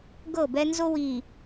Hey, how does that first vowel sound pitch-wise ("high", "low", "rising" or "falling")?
falling